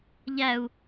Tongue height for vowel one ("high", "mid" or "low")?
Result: low